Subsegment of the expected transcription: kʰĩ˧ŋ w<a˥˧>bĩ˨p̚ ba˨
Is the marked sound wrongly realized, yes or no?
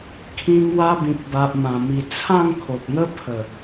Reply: yes